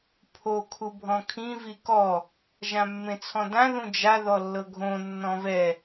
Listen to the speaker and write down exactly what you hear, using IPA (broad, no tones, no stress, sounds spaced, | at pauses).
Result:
pʰ o kʰ u bʱ ɔ̃ kʰ ĩ v i k ɔ | ʒ ã mː ẽ t͡sʰ ɔ̃ d ã ð ũ d͡ʒ a ð ɔ lː ɤ ɡʱ õ nː ɔ̃ v ɛ